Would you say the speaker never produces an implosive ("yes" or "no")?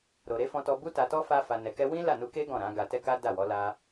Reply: yes